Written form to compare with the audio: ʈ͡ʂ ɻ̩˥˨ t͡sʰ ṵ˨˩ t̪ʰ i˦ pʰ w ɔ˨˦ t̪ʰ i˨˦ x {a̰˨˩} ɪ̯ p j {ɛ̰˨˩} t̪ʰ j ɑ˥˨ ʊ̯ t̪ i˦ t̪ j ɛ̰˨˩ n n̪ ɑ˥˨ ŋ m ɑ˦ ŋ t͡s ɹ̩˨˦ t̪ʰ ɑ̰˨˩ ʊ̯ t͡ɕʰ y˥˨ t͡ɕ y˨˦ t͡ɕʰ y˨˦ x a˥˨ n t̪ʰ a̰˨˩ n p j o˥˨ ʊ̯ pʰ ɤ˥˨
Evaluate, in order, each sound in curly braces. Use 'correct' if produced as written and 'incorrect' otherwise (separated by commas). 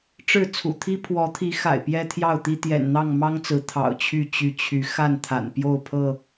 correct, incorrect